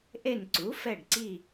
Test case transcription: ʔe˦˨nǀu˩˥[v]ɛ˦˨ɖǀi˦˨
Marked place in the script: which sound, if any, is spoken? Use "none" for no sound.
f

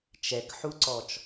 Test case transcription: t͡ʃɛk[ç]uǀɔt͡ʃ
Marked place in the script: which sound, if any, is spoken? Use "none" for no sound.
ħ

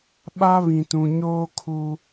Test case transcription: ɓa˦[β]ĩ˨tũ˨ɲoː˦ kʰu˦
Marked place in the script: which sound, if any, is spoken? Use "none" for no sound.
β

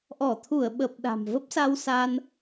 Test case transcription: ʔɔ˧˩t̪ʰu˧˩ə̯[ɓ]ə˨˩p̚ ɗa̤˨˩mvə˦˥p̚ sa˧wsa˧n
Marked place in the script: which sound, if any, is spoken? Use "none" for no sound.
ɓ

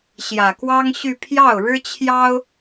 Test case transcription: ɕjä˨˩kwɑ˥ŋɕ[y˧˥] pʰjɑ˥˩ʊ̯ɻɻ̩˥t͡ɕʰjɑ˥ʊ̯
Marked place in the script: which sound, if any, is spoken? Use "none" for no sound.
y˥˧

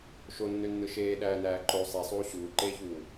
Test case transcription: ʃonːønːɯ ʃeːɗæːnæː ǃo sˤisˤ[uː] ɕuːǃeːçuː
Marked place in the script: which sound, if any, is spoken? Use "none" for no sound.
uː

